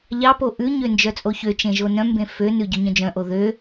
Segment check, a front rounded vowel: present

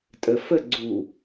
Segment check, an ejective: present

